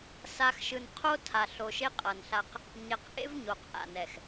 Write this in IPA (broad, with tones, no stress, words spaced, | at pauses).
sa˨x ʃɯ˨nqʰo˦ tʰa˨ɬo˨ʃe˦ qʼʌ˨nɬa˦q | ɲɛ˨qʔḛ˦v ɲo˨qʔa̰˨ nɛ˨x